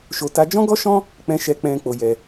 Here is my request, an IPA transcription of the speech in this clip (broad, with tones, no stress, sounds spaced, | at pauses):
ʃ o˧ t a˦ d͡ʒ ɔ̃˦ ɡ ɔ˦ ʃ ɔ̃˦ | k͡p ɛ̃˧ ʃ ɛ˧ k͡p ɛ̃˧ k͡p o˧ j ɛ˧